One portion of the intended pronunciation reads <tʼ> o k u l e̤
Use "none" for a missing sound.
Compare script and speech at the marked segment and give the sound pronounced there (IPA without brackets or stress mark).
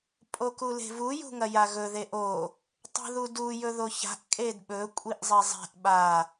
pʼ